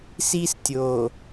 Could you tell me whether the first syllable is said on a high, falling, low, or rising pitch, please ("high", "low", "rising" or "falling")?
high